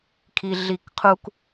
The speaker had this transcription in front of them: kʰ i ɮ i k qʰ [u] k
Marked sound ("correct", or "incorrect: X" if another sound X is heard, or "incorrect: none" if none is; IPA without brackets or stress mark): correct